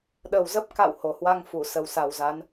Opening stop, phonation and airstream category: implosive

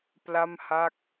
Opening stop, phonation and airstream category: plain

